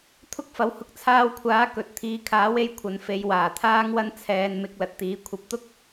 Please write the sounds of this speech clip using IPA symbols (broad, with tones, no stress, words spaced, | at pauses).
t̪ʰʊ˥k̚fɐ˨˥whʊ˨˥k̚ t͡sʰaː˧wkʷʰaː˨˥ kɵ˨t̚t̪ʰiː˧ kʰaː˨˥we˧j kʷʰɐ˨nfe˨˧j waː˨˩t̪ʰaː˥ŋwɐ˥n t͡sʰɛː˧nmɪ˧k̚ lɐ˨t̚t̪iː˨˥kʷʰɐ˧p̚ t̪ʊ˥k̚